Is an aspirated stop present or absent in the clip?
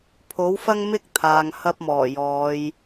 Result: present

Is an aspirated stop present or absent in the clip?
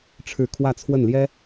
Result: present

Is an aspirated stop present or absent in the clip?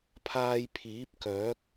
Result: present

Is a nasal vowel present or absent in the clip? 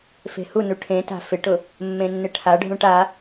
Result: present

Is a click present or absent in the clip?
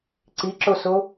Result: present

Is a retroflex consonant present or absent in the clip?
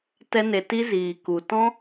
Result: absent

